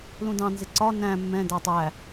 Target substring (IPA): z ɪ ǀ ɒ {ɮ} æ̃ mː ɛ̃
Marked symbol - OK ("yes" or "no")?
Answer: no